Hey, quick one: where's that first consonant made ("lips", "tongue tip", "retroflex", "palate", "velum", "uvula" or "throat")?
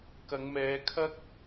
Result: velum